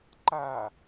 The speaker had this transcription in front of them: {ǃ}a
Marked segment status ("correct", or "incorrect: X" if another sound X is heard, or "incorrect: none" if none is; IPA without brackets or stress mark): correct